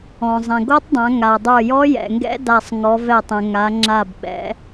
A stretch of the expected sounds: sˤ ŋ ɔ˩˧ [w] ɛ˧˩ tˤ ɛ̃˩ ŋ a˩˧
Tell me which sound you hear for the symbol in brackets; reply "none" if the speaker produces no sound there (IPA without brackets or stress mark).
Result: v